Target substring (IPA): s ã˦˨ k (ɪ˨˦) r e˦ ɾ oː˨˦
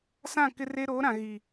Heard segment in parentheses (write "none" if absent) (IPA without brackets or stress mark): ɪ˦